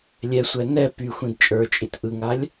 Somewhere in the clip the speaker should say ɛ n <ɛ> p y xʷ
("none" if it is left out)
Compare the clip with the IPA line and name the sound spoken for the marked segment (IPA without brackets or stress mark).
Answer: ɛ